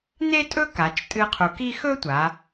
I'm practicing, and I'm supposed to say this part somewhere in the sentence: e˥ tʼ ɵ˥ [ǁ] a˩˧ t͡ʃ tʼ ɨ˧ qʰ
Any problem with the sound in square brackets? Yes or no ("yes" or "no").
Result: yes